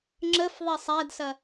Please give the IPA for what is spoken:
ŋ͡ǁəf ðˤɛsˤædsɐ

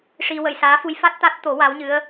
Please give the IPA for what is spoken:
ʂi˧wə˨˩˨jsaː˧˥fu˧˥j fa˦˥t̚t̪a˦˥t̚t̪o˨˩˦ wa˧˥wɲɨ˧˥ə̯

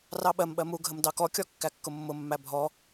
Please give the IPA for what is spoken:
rɑɓɜmɓɜ muɡʱəm dɑkɔkʲɔ kːækːʊmːʊmːæ bʱɔ

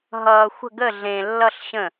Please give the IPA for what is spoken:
ɦʌː˩ xʷə̤˧˩ɡə˧˩ ɮẽː˩lːʌ˧˩ɬ ɕə̃˧˩

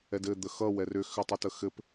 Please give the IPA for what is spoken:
ɛdɘ d̪əxʌ wɛrʏ xʏtˤʌtəxɘp

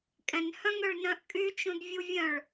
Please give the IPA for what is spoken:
kʼɛ̃nhœ̃ŋøɭ nœ̃ʔkʼyt͡ʃũd vʲuvʲœ̃ɭ

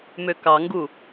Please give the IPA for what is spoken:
møkɑŋɡu

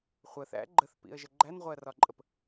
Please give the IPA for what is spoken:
χʷəθæ̰ ɡ͡ǃəθpḭə̯ʒə ɡ͡ǃænʁʷɜrɒǃʼəp

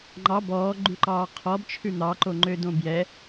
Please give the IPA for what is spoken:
ŋ͡ǃɑ bɔːɡ͡ǃʉǃɑː qʰɔbt͡ʃʰʉ n̪ɑǃoŋ͡ǃø dõbjɛ

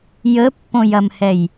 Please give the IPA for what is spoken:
jəpːõjɐmhɛj

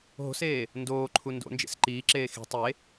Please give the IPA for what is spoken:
ɦo̤seː | ndoːǃʰu ndo̰nd͡ʒḛs ǃiːǁeː xi̤ tˤe

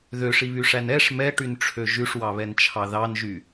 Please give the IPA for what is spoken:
ðøʂiβyʂæn ɛʂ mɛʈynʈ͡ʂʰø ʒʉʂwɑβɛnt͡ʃʰɑ ðɑnʒy

